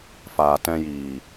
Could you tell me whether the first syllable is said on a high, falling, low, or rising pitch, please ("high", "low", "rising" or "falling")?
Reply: low